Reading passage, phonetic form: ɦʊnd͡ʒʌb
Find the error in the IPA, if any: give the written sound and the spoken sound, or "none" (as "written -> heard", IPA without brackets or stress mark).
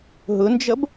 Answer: none